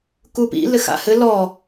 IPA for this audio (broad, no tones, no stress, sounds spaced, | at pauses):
k u p ḭ l ɘ x a̰ h ɘ l ɔ